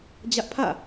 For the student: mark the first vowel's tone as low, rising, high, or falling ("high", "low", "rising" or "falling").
high